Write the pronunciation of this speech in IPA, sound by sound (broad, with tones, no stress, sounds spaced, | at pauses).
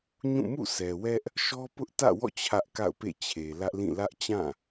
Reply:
ɲ ũ˦˨ m ṵ˦˨ s ɛ˨ w ɛ˦ ʔ | ʃ ɔ˦ p ʊ˦ ʔ t ä̰˦˨ w ɔ̰˦˨ t͡ɕʰ ä˦ ʔ k a̰˦˨ ʊ̯ p ḛ˦˨ t͡ɕʰ e˨ l ä˦ ʔ l ĩ˦˨ l ä˦ ʔ t͡ɕ ã˦˨